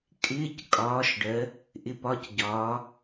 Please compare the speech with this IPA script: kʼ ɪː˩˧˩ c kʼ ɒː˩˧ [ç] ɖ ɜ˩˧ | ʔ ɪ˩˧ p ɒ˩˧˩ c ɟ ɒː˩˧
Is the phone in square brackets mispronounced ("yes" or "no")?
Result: yes